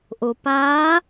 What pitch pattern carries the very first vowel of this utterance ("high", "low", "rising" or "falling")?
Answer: low